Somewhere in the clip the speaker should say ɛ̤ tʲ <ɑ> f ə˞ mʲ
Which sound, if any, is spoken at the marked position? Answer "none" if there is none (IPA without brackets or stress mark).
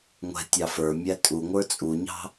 ɑ